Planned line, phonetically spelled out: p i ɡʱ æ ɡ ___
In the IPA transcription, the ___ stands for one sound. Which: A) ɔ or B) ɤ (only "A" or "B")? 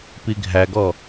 A